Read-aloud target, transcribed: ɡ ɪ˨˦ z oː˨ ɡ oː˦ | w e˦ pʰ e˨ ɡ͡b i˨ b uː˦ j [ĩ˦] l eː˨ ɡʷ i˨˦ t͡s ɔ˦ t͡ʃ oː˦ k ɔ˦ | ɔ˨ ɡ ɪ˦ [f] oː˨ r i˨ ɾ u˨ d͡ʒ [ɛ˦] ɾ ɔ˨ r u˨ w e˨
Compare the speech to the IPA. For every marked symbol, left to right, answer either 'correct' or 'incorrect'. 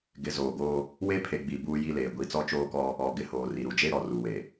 incorrect, incorrect, incorrect

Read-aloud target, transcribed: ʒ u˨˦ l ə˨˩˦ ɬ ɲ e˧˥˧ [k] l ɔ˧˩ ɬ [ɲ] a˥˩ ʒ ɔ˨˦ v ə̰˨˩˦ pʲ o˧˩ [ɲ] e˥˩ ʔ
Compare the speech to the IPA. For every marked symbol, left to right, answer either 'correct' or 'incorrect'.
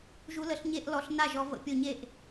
incorrect, incorrect, correct

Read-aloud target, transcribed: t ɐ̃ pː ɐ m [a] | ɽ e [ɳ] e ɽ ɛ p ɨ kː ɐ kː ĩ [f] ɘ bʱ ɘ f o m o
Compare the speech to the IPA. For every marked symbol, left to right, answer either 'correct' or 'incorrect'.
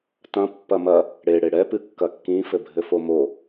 incorrect, incorrect, correct

